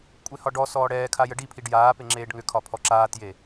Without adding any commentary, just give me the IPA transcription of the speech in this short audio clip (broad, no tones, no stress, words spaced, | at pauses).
kʷʼehɒɖɔsɔː ɽɛːkʰa jəɖipʰiɖ jaːpe ŋ͡ǁeːɖŋʏkʰɒ pʰɔǁaːtje